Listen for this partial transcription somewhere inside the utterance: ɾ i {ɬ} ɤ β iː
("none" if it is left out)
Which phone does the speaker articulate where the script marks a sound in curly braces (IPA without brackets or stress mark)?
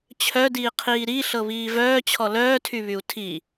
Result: ɬ